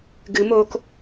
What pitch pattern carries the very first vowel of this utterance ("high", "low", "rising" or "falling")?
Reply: rising